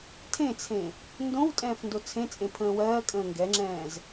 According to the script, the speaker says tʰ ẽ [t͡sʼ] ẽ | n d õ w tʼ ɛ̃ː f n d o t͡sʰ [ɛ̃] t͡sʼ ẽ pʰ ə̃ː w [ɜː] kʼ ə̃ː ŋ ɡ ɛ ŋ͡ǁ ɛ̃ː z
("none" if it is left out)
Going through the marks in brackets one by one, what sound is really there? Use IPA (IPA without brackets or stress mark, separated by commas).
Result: t͡sʰ, ẽ, ɜː